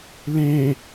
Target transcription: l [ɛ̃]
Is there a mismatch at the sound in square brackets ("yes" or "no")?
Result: yes